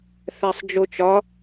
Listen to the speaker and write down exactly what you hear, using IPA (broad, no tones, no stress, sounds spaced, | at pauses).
θ æ sˤ d͡ʒ o t͡ʃ ɒ